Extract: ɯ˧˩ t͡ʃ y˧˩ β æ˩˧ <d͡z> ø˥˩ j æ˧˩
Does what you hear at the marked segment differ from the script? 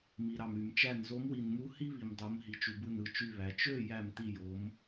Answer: yes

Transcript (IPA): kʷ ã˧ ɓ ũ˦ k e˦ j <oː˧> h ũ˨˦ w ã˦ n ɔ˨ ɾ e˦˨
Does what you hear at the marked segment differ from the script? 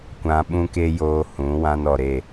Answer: no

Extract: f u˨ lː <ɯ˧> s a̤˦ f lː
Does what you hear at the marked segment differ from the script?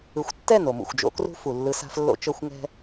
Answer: no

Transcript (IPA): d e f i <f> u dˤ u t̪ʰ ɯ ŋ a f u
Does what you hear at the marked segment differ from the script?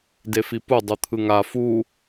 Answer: yes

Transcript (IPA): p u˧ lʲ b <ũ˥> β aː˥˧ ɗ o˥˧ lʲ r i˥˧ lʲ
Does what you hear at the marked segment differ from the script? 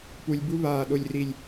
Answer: yes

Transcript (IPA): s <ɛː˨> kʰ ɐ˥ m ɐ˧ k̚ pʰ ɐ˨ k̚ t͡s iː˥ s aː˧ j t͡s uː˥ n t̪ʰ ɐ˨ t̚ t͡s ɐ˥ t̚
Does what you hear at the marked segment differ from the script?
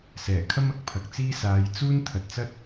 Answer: yes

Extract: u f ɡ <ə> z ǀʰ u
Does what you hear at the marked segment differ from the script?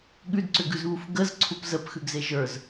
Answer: no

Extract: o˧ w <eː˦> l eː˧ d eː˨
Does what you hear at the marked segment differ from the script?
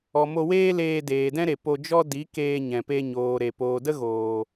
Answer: no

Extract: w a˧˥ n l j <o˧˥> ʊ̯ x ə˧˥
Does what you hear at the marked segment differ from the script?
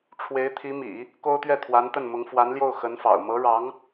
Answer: yes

